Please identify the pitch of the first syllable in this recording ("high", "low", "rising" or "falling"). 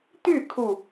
falling